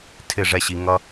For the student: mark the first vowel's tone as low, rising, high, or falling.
falling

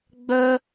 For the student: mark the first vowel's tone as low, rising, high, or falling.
high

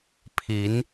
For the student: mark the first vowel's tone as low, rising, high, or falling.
rising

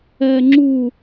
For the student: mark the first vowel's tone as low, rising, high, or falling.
low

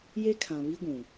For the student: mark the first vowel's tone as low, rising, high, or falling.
high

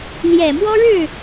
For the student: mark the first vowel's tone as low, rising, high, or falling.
low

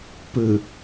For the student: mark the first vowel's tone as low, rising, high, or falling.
low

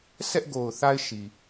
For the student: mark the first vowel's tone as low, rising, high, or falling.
high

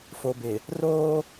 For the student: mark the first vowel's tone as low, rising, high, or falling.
low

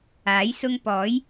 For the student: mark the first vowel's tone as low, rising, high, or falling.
rising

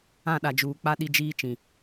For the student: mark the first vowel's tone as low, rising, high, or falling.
falling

